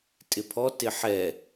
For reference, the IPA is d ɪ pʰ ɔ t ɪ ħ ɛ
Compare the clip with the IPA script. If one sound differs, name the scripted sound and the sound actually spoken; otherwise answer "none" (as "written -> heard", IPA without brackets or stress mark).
d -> tʼ